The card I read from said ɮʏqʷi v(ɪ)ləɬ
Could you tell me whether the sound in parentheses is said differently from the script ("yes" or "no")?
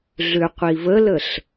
yes